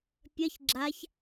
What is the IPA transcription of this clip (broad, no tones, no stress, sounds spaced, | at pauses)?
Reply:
pʲ ɐ ç ɡ͡ǁ a ç